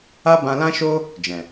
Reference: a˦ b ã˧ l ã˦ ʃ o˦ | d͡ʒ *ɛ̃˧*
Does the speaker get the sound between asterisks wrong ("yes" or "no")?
yes